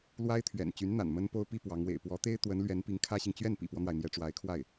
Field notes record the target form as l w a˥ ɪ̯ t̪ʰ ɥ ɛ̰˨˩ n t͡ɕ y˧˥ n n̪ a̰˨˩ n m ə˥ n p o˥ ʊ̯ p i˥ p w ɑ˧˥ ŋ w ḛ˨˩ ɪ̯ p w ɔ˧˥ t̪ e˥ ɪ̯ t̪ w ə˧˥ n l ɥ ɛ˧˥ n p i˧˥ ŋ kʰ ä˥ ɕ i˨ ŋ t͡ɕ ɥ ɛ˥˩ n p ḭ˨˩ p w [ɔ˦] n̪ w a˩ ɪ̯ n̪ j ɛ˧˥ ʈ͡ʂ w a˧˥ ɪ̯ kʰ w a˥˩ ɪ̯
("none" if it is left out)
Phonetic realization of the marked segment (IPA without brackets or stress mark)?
ɔ˦